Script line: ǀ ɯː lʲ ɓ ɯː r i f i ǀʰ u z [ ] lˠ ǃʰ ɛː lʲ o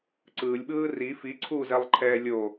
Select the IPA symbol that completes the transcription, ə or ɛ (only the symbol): ɛ